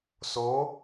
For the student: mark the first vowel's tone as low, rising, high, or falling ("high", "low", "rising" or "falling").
rising